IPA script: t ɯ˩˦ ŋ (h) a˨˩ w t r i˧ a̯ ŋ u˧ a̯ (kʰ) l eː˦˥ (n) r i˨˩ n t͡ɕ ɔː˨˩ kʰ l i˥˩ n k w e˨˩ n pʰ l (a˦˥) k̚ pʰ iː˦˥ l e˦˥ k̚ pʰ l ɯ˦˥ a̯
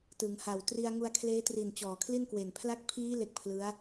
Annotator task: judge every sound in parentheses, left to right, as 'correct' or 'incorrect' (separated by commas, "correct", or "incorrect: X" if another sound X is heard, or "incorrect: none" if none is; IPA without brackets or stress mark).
correct, correct, incorrect: t, incorrect: a˥˩